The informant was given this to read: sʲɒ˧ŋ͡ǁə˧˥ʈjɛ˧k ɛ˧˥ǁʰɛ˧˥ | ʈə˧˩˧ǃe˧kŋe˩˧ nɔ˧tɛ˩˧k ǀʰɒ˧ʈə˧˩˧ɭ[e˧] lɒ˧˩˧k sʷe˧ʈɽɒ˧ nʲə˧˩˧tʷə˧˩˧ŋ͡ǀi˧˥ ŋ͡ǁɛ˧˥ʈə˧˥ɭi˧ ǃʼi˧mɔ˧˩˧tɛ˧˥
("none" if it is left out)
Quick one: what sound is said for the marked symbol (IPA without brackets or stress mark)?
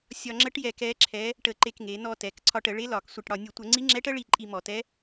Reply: e˧˥